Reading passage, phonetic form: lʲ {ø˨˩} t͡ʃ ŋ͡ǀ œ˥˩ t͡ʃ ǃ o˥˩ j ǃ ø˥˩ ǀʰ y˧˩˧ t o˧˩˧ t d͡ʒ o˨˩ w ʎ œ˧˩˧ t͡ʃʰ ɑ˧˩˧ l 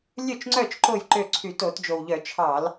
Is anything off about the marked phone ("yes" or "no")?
yes